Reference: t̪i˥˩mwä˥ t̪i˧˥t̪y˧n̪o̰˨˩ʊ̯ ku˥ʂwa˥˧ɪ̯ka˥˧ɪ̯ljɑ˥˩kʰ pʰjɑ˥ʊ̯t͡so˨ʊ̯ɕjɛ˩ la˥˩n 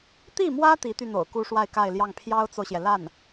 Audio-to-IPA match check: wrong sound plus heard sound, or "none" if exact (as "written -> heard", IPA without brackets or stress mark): kʰ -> ŋ